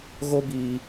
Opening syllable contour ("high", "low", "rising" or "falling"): high